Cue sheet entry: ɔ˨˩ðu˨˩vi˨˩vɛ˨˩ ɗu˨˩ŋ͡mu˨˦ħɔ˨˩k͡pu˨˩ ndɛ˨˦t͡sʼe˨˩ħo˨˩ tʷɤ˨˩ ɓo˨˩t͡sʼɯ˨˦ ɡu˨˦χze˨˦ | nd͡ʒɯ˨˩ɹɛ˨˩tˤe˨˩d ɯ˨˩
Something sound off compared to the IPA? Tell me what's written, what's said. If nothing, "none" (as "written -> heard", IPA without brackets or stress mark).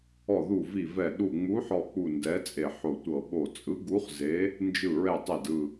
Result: none